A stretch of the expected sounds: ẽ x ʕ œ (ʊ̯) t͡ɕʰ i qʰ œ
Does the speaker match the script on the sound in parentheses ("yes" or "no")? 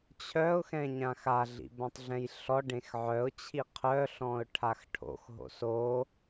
yes